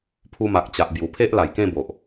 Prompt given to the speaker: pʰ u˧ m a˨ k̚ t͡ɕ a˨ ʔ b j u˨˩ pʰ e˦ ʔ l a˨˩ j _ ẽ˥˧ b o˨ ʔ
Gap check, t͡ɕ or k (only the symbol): k